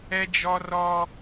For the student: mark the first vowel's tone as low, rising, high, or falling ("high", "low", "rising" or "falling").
high